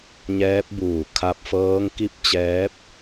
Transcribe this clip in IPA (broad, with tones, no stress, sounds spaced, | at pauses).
ɲ ɛː˧˥ p̚ b uː˧˩ kʰ a˧ p̚ f ɤː˧˥ ŋ k i˥˨ p̚ t͡ɕ ɛː˧˥ p̚